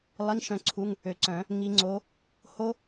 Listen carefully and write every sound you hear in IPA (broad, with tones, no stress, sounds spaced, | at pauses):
lˠ i˧˥˧ ŋ ʃ œ̃˦˥ ǀʰ u˧˥˧ ŋ | ø˨ ǀ œ̃˨˩˦ | ŋ i˨˦ ŋ͡ǀ o˨˦ | h o˦˥